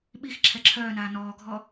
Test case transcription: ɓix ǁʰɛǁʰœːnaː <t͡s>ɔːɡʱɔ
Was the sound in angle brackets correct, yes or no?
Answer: no